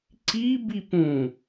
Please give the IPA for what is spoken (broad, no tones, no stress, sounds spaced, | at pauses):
ǀ i b i p ũ